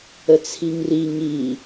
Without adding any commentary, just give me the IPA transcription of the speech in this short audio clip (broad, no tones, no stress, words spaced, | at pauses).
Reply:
ət͡sʰiŋri ŋi